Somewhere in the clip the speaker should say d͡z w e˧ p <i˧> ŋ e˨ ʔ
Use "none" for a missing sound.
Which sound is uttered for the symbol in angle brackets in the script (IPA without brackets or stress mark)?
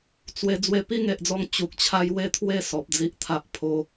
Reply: i˥˧